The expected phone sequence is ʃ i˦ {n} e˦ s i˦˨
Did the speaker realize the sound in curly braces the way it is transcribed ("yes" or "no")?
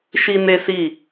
yes